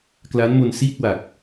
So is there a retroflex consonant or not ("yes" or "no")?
no